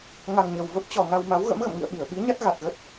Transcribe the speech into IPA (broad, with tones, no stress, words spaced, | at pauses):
ŋa˨˩ŋɲə˨˩w və˦˥p̚t͡ɕɔ˨˩ŋa˧wma˨˦w ɣə̰˧˥mɣə̰˧˨mŋḭ˧˨ə̯ ɓi˧˩ə̯ɓi˨˦ɲa˦˥t̚ ɣa˨˩t̚ɣə˦˥t̚